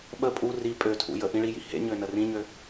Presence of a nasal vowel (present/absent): present